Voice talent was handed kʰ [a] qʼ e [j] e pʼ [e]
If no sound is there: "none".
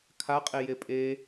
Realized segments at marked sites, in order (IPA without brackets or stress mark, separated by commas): a, j, e